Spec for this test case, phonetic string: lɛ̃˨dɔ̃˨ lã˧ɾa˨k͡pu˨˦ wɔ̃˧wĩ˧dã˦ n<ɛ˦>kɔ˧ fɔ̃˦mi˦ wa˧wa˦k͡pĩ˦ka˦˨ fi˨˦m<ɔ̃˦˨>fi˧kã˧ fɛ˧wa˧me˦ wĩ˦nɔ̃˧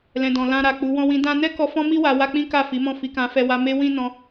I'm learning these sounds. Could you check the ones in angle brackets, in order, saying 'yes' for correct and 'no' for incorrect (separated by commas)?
yes, yes